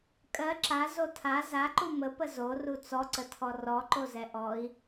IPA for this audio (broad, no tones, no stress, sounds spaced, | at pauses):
kʼ ɜ ǁ a z o tʰ a z a ǃ u m ə p ə z o r u t͡s ɔ ǀ ə tʰ ɔ r ɔ ǃ o z ɛ ʔ ɔ i̯